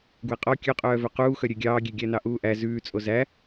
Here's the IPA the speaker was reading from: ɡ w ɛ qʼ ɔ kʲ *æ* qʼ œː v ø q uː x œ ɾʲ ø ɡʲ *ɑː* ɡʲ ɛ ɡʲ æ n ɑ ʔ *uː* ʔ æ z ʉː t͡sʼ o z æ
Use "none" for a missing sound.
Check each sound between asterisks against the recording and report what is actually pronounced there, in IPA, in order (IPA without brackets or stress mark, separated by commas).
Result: œ, ɑː, uː